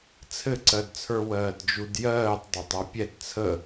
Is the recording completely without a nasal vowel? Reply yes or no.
yes